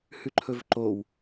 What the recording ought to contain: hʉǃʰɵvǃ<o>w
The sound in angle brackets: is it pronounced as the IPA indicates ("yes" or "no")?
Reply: yes